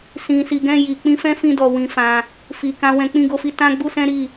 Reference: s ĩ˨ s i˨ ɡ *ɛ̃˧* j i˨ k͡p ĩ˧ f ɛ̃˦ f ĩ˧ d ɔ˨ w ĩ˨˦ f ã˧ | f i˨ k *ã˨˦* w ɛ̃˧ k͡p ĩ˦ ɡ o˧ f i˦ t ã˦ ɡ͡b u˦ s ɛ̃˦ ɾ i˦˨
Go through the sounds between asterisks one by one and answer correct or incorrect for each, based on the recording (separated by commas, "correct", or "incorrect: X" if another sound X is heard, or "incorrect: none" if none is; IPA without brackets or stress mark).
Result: correct, correct